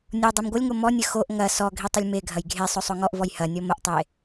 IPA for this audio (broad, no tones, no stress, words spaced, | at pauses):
nʲo dˤemɡʷɐlʲŋo mɔnʲə xoʔ ŋɐ sɔ ɡʱitˤəlʲmeɡʱɐj ɡʱe sˤosˤoŋɔʔvɔj hɐnʲɔ məʔtˤe